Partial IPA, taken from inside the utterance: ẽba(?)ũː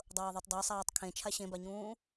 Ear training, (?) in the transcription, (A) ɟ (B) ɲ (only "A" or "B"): B